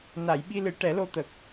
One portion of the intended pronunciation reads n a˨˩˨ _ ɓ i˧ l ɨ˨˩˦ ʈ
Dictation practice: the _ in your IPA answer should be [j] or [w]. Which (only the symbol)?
j